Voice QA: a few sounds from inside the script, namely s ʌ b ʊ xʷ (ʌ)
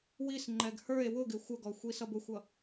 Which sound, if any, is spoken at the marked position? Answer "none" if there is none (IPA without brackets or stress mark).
ʌ